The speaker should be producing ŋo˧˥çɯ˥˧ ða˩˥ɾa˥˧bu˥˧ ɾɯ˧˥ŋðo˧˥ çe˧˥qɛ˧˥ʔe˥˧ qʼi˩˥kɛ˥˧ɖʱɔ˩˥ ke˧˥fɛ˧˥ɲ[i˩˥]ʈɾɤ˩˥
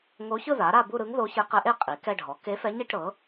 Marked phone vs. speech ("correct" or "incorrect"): incorrect